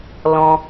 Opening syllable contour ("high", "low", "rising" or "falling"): low